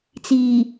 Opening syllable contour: low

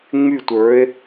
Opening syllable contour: falling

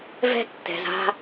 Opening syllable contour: high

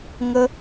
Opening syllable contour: high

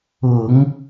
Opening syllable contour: low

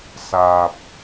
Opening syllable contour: low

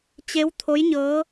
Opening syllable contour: rising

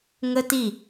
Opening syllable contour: high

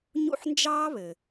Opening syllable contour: falling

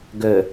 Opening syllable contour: low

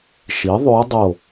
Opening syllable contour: rising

